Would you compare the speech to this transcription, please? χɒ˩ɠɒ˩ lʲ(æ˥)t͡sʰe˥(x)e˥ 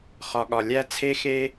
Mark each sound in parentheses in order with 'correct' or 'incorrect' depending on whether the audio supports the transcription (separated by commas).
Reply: correct, correct